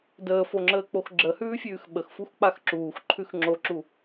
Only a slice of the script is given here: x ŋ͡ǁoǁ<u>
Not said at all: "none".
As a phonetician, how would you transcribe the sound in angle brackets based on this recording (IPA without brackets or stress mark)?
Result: u